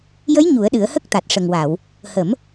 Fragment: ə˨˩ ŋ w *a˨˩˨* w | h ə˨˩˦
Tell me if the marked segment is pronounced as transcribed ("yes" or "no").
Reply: yes